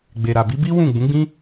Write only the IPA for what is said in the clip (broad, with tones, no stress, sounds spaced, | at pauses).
ɡ͡b e˨ ɾ a˨ b i˨˦ b i˦ w ũ˦˨ ɡ͡b ũ˨˦ ɡ͡b ĩ˦